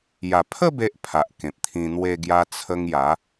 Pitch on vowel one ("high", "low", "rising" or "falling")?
low